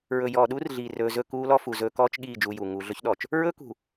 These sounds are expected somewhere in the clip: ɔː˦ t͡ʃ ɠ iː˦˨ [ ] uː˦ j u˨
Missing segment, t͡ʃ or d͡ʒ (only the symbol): d͡ʒ